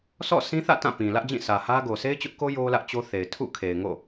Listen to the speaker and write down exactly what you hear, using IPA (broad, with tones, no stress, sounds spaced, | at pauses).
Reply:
sʰ ɔ̰˦˨ sʰ ĩ˦ θ ä̰˦˨ t ã˦˨ p ĩ˨ l ä˦ ʔ d͡ʑ ĩ˦˨ s ä˨ h ä˦ ɡ o˨ sʰ e˦ ɪ̯ t͡ɕ ʊ˦ ʔ k o˦ j o˦ l ä˦ ʔ t͡ɕ o˦ θ e˨ ɪ̯ tʰ ṵ˦˨ kʰ e˨ ɪ̯ ŋ o̰˦˨